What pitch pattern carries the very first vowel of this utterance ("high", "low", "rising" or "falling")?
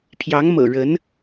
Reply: rising